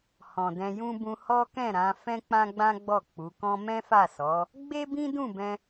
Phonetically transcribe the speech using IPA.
h ɔ̃˨ d ɛ̃˧ j ũ˦ b ũ˧ h ɔ˦ k ɛ̃˦˨ ɾ ã˨˦ f ɛ̃˦ k͡p ã˦ ɡ͡b ã˦ ɡ͡b ɔ˦˨ k͡p u˨˦ k ɔ̃˦ m ɛ̃˦ f a˦˨ s ɔ˨˦ | ɡ͡b e˦ b ĩ˦ d ũ˦˨ b ɛ̃˧

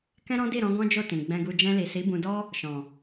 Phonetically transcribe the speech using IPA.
k ɛ̃˦ ɾ ɔ̃˦ d i˦˨ ɾ ɔ̃˨˦ ɡ ɔ̃˦ d͡ʒ o˦˨ t ĩ˨ ɡ͡b ɛ̃˧ ɡ u˧ d͡ʒ ɛ̃˧ l i˨ s i˨˦ b ũ˧ d ɔ˦ | ʃ ɔ̃˨

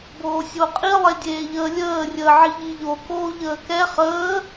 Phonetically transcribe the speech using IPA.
b oː sʲ o qʼ i lˠ e dʲ eː ʎ əː lʲ əː rʲ əː ʕ i ʎ i ʎ o k oː ʎ əː k ɛ χ əː

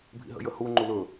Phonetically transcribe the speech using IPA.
bʱ ḭ ɦ ə̰ j ə h u ŋ͡ǃ u l ɵ

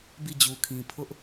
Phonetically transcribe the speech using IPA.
b i˦˨ d͡ʑ u˨ kʰ ĩ˨ pʰ ʊ˦ ʔ

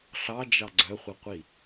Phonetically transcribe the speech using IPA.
ɬ ɑ d͡ʒ ɑ ɡ͡ǀ œ χʷ e qʷ i

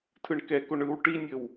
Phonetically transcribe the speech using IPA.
tʰ ɯ ɳ k ɛ k o ɳ ɯ w ʈ i nʲ ə w

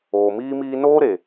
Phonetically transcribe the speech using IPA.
oː˨ m iː˦ m iː˦ n oː˦ ɾ e˨

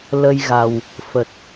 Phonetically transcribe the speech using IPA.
l ə˧ j ɣ a˨˩ w | f ə˨˩ t̚

